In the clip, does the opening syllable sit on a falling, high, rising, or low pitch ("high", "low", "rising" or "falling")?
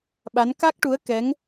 rising